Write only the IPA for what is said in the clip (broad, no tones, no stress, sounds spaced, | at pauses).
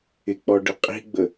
ɪ k͡p ɔ ɖ ɘ qʼ i̤ ɡ͡b ə